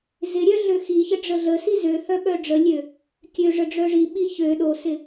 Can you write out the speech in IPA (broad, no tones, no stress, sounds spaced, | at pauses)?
z ɪ ɾʲ œ ɮ ø x i ç ə ɖ͡ʐ ə ɮ ə s i z ø h œ ɓ œ ɖ͡ʐ ə lʲ ø | kʲ ø ʐ ə ɖ͡ʐ œ ʐ i ɓ i ç ø ɗ o s ɪ